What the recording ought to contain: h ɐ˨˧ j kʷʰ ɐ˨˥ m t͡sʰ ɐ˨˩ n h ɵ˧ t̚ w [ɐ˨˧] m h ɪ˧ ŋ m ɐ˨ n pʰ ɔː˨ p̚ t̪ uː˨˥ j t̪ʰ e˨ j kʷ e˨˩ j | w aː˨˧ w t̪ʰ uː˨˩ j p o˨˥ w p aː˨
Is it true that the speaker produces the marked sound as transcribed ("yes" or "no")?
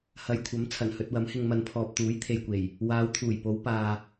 no